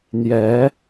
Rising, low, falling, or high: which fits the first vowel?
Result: rising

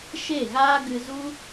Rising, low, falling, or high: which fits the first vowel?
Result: falling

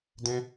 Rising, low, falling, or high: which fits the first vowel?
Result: high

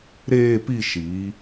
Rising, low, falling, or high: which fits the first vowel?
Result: falling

